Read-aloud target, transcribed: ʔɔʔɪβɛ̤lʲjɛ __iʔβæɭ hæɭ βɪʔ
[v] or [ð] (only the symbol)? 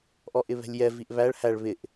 v